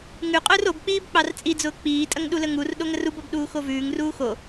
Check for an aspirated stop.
absent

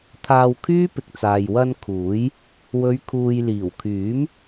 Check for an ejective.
absent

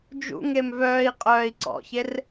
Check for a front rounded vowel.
present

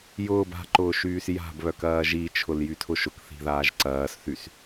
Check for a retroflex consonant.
absent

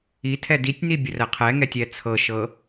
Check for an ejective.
absent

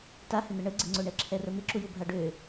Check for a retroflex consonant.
present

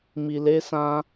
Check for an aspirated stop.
absent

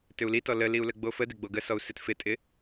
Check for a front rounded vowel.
present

